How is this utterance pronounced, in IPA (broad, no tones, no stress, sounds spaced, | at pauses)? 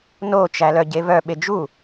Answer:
n o t͡ʃ æ l œ ɟ e v œ ɓ e d͡ʒ u